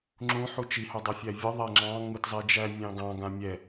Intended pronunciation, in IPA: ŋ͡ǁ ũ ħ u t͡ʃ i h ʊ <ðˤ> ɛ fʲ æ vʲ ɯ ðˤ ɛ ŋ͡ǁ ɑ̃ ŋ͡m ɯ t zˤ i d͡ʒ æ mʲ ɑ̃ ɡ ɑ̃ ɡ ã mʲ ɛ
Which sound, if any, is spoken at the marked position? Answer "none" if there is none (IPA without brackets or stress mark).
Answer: dˤ